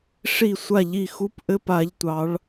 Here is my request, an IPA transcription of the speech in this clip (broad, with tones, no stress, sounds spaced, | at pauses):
ʂ i˦˨ sʷ a˦˨ ʎ i˦˨ x u˧˥˧ p ʔ ɘ˧˥˧ p a˨˥ ʎ tʷ ɑ˨˥ ɭ